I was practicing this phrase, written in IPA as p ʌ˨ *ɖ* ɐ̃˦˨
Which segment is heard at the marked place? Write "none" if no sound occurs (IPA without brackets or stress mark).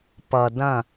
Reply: d